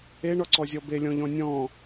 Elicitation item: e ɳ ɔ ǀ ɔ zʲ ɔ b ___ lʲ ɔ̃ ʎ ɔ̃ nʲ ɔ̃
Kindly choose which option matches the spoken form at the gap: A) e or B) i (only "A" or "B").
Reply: A